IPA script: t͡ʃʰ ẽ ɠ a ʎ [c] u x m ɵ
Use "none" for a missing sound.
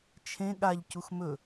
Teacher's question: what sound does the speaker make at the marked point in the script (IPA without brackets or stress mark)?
c